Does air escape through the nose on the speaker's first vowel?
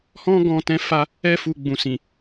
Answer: yes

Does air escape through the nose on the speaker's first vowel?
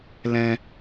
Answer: yes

